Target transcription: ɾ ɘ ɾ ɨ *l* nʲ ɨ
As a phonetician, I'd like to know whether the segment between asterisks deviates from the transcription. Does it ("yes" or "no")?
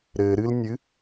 no